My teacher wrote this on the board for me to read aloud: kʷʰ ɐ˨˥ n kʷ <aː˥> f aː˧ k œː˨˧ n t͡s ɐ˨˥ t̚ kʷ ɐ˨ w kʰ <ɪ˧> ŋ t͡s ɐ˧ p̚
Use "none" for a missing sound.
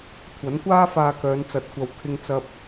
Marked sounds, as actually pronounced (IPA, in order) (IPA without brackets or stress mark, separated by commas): aː˥, ɪ˧